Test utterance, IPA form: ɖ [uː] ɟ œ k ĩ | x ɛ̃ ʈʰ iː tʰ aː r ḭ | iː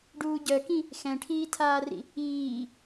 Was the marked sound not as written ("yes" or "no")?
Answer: no